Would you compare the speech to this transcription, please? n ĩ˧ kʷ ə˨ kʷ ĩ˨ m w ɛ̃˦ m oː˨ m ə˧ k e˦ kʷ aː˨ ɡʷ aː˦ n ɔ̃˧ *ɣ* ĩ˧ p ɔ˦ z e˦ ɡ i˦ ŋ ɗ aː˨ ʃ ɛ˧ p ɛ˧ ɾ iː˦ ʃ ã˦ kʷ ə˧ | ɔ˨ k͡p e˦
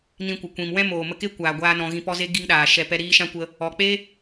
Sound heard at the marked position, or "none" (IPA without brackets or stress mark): ɣ